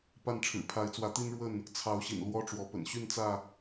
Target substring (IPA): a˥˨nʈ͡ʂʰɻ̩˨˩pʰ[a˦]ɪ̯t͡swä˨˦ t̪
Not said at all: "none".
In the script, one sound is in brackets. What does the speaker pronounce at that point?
a˨˦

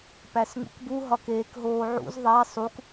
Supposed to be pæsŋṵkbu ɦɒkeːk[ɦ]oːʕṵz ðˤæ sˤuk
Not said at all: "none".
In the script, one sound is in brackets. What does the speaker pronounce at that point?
ɦ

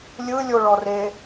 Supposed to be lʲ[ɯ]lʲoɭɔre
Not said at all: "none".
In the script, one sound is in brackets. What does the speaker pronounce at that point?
ɯ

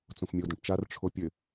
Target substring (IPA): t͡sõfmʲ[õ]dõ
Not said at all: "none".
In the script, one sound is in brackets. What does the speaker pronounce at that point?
o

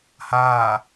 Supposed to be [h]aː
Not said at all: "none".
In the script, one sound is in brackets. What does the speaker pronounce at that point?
h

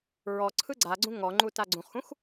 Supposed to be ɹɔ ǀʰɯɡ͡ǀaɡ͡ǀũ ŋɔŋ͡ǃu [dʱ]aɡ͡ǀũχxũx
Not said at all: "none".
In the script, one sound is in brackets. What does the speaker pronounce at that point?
t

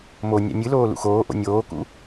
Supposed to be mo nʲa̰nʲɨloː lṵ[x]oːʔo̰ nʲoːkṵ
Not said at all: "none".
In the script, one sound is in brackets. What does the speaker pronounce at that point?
x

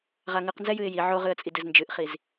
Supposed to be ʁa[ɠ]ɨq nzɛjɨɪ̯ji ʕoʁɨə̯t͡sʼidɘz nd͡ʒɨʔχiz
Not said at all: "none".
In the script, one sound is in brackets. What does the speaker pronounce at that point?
ŋ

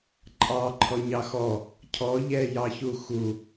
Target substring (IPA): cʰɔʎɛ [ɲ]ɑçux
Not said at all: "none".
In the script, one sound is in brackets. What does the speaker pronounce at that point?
j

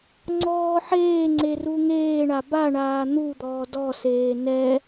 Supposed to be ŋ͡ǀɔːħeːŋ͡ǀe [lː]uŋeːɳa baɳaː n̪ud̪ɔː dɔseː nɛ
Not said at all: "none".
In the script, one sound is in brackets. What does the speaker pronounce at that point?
r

